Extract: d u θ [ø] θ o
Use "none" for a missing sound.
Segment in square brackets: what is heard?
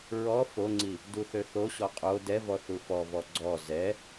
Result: ø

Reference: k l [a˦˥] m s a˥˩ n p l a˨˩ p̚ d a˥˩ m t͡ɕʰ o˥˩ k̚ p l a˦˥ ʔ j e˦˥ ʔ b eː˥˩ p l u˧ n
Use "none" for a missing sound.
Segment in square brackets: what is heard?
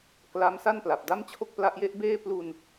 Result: a˦˥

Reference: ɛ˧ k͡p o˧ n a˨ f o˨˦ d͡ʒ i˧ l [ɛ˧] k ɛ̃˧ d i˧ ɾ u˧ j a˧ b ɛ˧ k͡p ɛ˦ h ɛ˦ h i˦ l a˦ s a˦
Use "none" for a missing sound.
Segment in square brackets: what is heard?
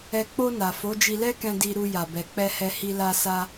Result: ɛ˦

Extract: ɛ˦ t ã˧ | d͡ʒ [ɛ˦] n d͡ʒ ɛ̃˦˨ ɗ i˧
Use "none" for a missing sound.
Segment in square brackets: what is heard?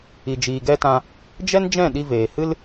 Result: ɛ˦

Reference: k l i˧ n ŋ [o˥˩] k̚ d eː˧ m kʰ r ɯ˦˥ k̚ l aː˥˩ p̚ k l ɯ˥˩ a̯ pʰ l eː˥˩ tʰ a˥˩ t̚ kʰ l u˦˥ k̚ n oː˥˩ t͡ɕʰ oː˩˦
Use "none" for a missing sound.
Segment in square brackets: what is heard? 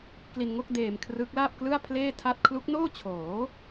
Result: o˥˩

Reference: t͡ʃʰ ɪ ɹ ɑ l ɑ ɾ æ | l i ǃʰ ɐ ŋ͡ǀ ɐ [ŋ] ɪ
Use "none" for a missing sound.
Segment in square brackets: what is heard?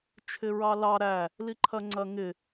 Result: ŋ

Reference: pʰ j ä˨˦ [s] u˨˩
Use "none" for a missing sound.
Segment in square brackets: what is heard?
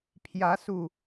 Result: s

